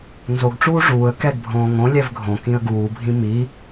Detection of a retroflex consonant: present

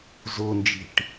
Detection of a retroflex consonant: present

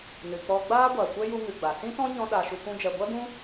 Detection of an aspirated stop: absent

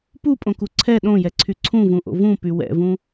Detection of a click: present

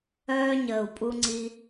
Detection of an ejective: present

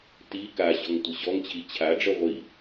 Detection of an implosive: absent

